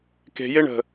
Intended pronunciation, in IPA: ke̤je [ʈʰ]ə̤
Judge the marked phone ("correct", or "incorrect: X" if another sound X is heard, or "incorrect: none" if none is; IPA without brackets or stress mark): incorrect: ɳ